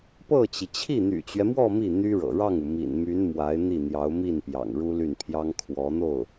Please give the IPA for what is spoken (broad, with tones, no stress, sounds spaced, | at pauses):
p ɤ˥˩ t͡ɕ i˩ t͡ɕʰ i˥˩ n̪ y̰˨˩ t͡ɕ ɥ ɛ˦ m w ɔ˥˧ m i˥˩ n̪ y˥ ɻ ɤ̰˨˩ ɻ ɑ˥˩ ŋ u˩ m ḭ˨˩ n m y˧˥ n m w a˧˥ ɪ̯ n̪ i˥˩ n̪ j ɑ˧˥ ʊ̯ m i˥˩ n p j ɑ̰˨˩ ŋ ɻ u˥ l y˥˩ n pʰ j ɑ˥ ŋ kʰ w ɔ˧˥ n̪ o˥˩ ʊ̯